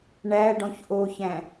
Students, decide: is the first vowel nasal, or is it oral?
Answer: oral